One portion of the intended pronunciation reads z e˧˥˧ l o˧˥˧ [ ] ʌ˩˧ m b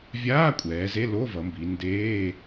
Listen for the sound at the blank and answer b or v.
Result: v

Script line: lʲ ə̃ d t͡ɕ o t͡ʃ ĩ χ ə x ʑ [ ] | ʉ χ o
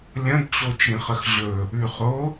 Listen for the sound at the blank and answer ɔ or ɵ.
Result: ɵ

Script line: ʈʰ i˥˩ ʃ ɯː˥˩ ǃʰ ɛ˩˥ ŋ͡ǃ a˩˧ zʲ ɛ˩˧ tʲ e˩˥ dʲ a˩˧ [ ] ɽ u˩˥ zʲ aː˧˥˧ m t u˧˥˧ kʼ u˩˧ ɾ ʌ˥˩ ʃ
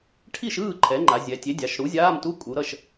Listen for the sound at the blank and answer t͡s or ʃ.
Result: ʃ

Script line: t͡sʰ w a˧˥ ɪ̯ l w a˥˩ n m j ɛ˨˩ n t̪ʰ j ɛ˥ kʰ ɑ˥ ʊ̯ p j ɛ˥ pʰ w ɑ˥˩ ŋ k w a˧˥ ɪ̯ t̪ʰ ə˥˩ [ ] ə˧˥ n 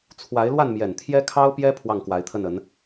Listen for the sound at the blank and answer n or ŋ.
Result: n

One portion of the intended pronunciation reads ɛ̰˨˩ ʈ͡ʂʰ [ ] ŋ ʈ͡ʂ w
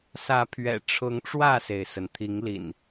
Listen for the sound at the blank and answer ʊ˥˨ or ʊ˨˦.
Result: ʊ˨˦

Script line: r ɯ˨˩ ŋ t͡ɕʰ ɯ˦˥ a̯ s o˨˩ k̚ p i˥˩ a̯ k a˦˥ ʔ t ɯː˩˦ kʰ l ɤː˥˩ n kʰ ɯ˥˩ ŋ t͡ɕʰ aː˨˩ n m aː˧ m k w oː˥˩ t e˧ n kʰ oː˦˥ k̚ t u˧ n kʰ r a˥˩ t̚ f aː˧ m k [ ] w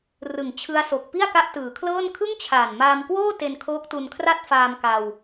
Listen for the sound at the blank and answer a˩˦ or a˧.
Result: a˧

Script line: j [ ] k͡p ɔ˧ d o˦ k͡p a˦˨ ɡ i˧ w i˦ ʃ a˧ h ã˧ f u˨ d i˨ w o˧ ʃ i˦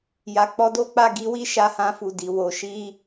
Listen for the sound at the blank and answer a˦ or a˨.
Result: a˨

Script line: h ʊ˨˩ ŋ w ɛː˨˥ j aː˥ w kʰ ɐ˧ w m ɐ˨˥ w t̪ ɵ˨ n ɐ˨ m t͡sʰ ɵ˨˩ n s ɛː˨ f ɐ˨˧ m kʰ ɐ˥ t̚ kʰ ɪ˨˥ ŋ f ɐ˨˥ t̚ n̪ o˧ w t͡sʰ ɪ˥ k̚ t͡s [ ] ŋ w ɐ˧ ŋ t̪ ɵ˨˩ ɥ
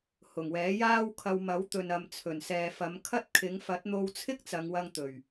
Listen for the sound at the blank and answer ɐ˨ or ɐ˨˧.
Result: ɐ˨˧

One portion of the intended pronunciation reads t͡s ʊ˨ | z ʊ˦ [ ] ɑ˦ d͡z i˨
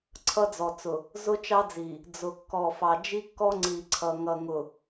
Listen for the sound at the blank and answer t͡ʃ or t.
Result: t͡ʃ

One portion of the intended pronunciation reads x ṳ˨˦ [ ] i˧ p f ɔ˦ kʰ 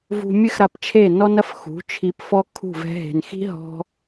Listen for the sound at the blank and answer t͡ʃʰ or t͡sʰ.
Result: t͡ʃʰ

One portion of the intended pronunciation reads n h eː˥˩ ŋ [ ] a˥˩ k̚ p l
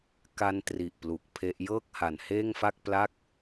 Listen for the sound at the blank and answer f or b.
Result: f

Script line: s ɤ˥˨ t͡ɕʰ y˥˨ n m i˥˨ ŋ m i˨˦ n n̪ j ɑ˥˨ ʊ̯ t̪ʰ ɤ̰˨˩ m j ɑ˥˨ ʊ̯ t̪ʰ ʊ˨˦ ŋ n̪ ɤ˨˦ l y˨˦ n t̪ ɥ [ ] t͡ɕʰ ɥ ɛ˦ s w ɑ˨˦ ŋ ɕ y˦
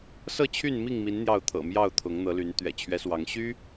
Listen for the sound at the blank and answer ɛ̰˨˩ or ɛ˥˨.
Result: ɛ̰˨˩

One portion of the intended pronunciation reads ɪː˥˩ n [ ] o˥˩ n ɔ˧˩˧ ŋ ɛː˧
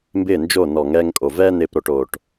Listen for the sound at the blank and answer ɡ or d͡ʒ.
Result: d͡ʒ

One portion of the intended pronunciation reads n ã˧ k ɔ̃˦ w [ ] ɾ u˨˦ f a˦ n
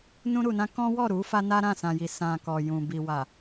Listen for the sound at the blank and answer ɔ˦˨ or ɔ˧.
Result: ɔ˦˨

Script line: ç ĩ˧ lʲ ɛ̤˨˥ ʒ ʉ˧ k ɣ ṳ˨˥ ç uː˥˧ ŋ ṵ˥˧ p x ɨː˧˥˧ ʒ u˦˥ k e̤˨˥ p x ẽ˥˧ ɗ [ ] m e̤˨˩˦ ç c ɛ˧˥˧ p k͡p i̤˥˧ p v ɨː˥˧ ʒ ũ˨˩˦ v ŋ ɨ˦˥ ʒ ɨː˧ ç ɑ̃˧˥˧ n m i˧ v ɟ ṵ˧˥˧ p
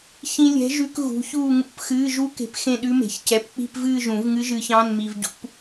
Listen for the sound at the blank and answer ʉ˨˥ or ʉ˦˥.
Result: ʉ˦˥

